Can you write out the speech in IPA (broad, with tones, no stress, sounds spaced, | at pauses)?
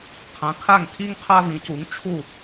qʰ ɐ̃˩˥ kʰ a˥˩ ŋ kʰ i˥ ŋ qʰ a˥ v ĩ˩˥ c u˩˥ ŋ t͡ʃʰ u˥˩